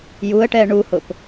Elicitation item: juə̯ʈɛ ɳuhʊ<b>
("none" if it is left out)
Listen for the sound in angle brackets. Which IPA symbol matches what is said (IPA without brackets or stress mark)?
p